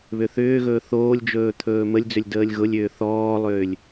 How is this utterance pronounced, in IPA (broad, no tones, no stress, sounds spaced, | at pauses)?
β ʏ θ ʏː ɣ ɵː θ oː lʲ d͡ʒ ɵː t̪ʰ ɵː m ə lʲ d͡z ʏ lʲ d əː lʲ ɣ ʊ lʲ ʏː θ ɔː lˠ ʏː lʲ